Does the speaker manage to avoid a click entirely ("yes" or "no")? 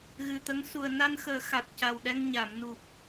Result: yes